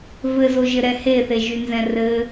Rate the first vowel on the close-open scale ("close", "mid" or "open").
mid